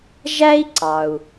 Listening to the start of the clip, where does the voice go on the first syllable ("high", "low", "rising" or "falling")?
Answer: high